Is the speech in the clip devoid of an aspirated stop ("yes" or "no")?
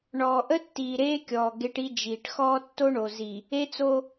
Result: yes